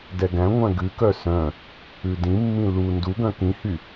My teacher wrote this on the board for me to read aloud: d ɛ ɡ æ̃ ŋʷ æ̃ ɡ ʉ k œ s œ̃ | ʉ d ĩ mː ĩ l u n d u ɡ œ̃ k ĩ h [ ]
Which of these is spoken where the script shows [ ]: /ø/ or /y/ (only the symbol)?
y